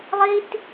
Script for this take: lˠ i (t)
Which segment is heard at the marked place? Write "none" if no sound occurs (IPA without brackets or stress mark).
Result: t